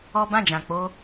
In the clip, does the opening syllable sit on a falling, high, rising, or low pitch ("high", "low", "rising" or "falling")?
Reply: high